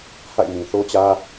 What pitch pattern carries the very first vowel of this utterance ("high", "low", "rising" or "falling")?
falling